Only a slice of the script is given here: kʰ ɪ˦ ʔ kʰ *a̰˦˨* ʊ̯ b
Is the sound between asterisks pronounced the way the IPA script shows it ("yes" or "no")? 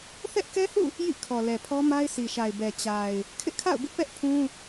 yes